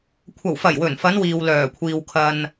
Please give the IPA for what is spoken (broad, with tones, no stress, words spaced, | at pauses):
kʷʰɐ˨˩wfɐ˨˩jwɵ˨˩n fɐ˨˧n wiː˨wlœː˨˩kʷʰiː˨w kʰɐ˨n